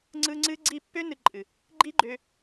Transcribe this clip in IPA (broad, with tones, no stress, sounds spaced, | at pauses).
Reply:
ŋ͡ǀ ɯ˦ ŋ͡ǀ ɨ˦ ɡ͡ǀ i˦˨ pː ø˦ n ɨ˧ ǃʼ ɨ˨ | ɡ͡ǃ i˦ ɡ͡ǃ ø˧